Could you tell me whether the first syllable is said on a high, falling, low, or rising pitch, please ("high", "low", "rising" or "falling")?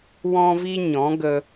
high